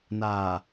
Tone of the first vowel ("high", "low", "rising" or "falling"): low